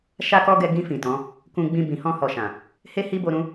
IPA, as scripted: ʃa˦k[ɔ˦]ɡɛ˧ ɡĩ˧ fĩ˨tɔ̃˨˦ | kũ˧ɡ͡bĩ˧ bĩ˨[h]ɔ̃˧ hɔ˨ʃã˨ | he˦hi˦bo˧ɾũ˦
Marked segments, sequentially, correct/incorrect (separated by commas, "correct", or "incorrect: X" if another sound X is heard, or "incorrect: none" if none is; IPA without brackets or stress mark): correct, correct